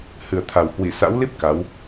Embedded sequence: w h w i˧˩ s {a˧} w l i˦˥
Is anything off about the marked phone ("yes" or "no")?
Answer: yes